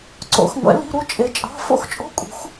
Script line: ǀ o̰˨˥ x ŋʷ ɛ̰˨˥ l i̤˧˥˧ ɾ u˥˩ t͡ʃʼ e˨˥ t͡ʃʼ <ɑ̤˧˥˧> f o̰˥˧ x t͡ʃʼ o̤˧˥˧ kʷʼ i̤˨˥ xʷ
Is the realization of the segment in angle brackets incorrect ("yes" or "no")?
no